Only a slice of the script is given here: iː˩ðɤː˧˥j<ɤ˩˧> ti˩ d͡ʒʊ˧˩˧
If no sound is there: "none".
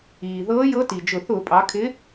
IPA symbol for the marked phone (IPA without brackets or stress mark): ɤ˧˥